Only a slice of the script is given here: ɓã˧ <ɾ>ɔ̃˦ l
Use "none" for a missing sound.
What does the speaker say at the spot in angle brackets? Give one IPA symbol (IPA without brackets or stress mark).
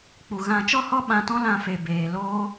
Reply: t